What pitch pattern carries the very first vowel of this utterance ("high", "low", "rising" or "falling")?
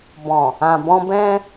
low